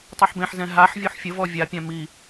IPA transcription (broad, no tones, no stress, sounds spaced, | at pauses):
tˤ y ħ b ẽ ħ z ɛ̃ ɦ a ħ vʲ o ħ fʲ ə v ɔ vʲ a pʲ ã m i